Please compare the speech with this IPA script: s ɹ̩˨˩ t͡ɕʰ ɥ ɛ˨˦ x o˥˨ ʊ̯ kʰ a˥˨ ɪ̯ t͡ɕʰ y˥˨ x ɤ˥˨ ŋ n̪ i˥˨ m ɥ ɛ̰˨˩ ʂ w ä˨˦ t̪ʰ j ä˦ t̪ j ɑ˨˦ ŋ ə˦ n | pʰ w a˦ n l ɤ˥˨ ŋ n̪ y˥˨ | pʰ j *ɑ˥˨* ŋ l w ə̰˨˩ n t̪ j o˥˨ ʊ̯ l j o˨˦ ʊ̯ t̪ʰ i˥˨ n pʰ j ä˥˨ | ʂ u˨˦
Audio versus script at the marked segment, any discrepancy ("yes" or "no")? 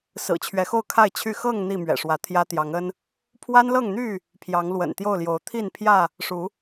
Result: yes